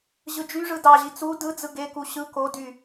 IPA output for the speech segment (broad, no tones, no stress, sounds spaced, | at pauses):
ʑ ɯ d͡ʒ y ʐ ɯ d ɑ ʑ i t͡s u d ɯ d͡z ɯ ɡ e k u ɕ ɯ k o d y